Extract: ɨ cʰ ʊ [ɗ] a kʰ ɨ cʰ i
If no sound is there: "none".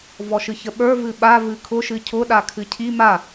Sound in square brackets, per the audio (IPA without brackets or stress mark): ɗ